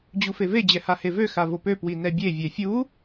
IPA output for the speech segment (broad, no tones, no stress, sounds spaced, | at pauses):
d͡ʑ u f e v e d͡ʑ ɛ h a h e v ø x a v o p ø p w i n ɛ bʲ e vʲ ɛ fʲ u